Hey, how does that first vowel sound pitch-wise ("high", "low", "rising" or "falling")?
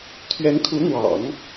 rising